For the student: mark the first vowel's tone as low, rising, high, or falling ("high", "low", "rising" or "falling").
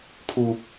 low